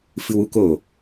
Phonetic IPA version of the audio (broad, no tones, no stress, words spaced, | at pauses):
fɨwuk o